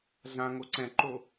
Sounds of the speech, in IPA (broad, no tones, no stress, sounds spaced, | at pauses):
ɮ ã ŋ o ǀ ɛ̃ ǃ o